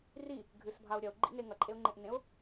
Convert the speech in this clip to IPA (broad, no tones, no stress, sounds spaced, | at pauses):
r i | ɡʱ ɨ s bʱ a ʊ̯ ɾʲ ɐ ʊ̯ ɡ͡ǃ ḭ n e ŋ ɐ ǃʼ e ʊ̯ ŋ͡ǃ ẽ ʔ n ẽ ʊ̯